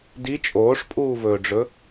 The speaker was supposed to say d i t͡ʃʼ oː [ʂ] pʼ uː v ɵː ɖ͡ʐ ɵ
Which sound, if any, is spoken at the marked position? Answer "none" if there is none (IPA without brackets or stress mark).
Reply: ʂ